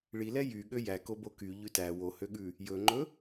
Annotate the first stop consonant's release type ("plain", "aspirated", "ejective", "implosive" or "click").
implosive